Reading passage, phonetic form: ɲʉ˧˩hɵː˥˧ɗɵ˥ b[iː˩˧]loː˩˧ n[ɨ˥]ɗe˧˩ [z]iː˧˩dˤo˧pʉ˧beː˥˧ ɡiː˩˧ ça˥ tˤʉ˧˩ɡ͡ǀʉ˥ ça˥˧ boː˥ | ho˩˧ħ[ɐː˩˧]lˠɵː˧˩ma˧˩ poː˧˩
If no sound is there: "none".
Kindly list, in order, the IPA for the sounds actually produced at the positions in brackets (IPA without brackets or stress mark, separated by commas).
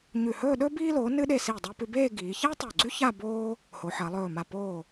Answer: iː˧, ɨ˧, s, ɐː˩˧